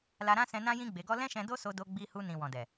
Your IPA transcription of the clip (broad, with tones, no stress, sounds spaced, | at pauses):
l a˧ ɾ ã˦ s ɛ̃˧ n ã˦ j ĩ˦ ɡ͡b e˧ ɡ ɔ˦ l ɛ̃˦ ʃ ɛ̃˧ d o˦ s o˧ d o˧ ɡ͡b i˧ h u˧ n ĩ˨ w ɔ̃˨ d ɛ˨